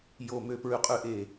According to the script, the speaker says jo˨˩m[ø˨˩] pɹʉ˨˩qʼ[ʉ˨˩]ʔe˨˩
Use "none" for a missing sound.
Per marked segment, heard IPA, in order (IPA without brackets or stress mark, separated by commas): ø˨˩, ʉ˨˩